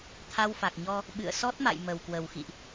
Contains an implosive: yes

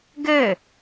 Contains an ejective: no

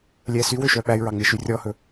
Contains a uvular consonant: no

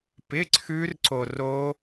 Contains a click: yes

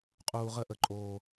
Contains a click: yes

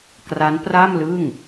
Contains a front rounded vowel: no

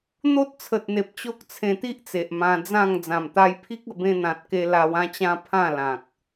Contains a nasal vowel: yes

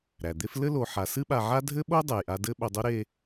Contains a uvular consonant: no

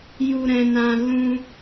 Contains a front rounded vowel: no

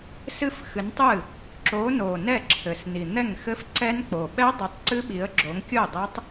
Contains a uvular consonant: no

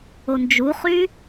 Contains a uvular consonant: yes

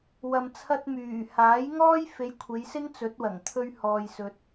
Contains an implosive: no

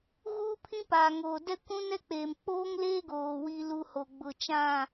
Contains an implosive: no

